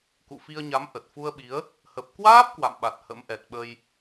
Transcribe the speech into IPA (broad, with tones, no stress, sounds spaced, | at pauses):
k ṵ˧˨ f i˧ ə̯ ɲ a˨˦ m ʔ ə˨˩ t̚ f u˧ ə̯ ɓ i˨˦ ə̯ | h ə˨˩ p̚ k w aː˦˥ p̚ k w a̰˧˨ m ɓ a˨˩ t̚ h ə̰˧˥ m ʔ ɛ˨˩ t̚ ɓ ə˧ j